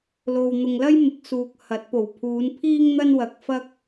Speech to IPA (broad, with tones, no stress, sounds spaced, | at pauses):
l o˨ w n̪ ʊ˨ ŋ l ɐ˥ j m ɪ˨˥ k̚ s uː˨ k̚ h ɐ˨˥ t̚ p o˨˩ w pʰ uː˨˧ n pʰ iː˥ ŋ n̪ ɐ˥ n w ɐ˨ k̚ f ɐ˥ k̚